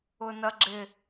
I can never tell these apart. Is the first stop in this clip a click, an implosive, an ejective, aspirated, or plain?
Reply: click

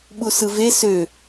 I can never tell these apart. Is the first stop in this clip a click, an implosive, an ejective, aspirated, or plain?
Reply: implosive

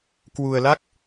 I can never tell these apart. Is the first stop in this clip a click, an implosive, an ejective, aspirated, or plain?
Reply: plain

